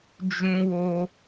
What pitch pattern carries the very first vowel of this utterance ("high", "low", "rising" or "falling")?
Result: high